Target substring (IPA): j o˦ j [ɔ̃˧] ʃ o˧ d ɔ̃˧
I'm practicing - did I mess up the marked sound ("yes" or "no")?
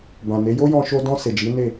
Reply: no